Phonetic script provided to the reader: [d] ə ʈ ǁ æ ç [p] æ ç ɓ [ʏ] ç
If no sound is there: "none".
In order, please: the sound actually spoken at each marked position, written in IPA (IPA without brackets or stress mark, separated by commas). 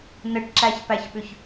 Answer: n, p, ʏ